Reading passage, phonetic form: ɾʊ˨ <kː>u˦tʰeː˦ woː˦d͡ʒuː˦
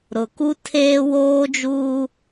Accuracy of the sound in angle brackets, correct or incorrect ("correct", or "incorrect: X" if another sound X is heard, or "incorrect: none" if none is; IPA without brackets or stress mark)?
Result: incorrect: k